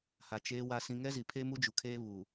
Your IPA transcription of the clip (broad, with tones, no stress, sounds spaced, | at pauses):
h a˨ t͡ʃ eː˨ w a˨ s ĩ˨ ŋ ɛ˦ z i˨ pʰ e˦ m u˦ d͡ʒ u˨ kʰ eː˦ β u˨